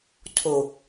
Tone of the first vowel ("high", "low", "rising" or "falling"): low